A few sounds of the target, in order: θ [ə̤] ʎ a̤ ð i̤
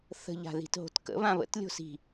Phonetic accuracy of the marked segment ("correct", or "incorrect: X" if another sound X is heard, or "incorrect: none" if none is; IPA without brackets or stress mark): correct